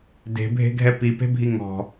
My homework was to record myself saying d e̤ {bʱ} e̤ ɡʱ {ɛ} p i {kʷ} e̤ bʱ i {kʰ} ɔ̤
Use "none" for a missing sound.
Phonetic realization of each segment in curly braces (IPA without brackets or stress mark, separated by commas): bʱ, ɛ, p, ŋ